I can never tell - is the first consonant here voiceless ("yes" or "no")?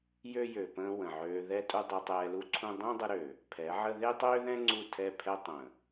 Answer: no